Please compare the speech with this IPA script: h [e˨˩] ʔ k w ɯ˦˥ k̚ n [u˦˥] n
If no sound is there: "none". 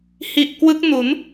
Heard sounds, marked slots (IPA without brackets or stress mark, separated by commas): i˨˩, u˩˦